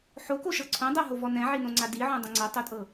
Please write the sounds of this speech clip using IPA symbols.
ħ o k o ʃ ɤ ǀʰ õ dˤ ɤ ɦ o v ɔ n ɛ̃ ʕ i n õ ŋ͡ǀ a d i ʕ õ dˤ ə̃ ŋ͡ǀ ɤ tˤ o tʼ ɤ

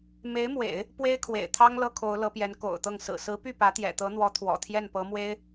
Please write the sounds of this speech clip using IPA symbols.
m e˧˥ ɪ̯ m w ḛ˨˩˦ ɪ̯ | p w e˥ ɪ̯ kʰ w ḛ˨˩ ɪ̯ t̪ʰ ɑ˥ ŋ l ɤ˥ kʰ o˧˥ ʊ̯ l ɤ˧˥ p j ɛ˧˥ n k o̰˨˩ ʊ̯ t̪ ɤ˥˩ ŋ s ɹ̩˨˩ s ɹ̩˧˥ p y˥˩ p ä˧˥ t̪ j ɛ̰˨˩ t̪ ɤ˧˥ n̪ w ɔ˧˥ t̪ʰ w ɔ̰˨˩ t̪ʰ j ɛ˥˩ n p ɤ˧˥ m w e˥ ɪ̯

